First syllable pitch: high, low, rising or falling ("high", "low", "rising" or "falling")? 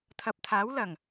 low